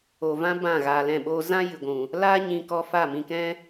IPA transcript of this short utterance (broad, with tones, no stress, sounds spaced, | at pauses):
o˨ v ã˦ b ã˦˨ ɣ aː˧ l ɛ̃˦˨ ɓ oː˦ z ã˦ j ɨ˨ ɡʷ ũ˨ | l aː˦ ɲ ĩ˧ k ɔ˧ f a˦˨ m ĩ˧ k ɛ̃˦